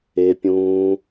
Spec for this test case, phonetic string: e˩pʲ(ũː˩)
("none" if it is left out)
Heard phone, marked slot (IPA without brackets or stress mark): ũː˩